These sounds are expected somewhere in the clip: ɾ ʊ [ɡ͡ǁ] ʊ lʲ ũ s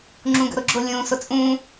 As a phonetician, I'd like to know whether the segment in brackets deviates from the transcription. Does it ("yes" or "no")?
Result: no